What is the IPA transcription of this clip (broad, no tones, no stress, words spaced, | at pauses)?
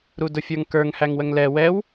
ɾudʊfʲə˞ŋkə˞ŋ hæŋwəŋlɛ wɛw